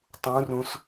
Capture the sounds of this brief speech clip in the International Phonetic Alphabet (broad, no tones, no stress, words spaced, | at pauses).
tˤũrũs